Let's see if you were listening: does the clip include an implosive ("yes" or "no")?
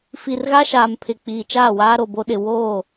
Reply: yes